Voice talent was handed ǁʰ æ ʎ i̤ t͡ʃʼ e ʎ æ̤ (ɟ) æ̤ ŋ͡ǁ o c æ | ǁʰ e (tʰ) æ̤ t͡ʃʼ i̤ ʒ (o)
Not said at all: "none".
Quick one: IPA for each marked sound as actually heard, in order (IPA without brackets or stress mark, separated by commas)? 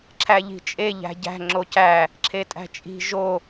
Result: ɟ, tʼ, o